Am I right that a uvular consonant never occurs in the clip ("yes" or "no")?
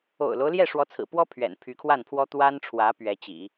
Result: yes